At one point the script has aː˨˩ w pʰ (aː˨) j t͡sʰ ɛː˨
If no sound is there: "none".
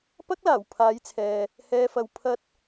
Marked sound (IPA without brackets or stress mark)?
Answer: aː˨˧